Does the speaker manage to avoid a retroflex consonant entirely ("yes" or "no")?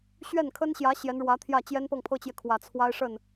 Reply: no